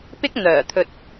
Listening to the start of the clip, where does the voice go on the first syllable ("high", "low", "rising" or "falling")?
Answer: high